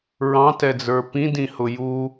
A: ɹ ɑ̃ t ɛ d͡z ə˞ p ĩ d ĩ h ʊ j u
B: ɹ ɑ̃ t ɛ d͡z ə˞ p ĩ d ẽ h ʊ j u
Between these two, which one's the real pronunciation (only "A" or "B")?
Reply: A